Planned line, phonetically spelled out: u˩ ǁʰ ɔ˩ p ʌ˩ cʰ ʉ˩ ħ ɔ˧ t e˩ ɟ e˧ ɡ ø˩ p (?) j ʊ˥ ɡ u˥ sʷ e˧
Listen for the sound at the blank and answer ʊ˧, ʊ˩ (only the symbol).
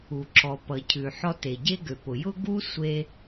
ʊ˩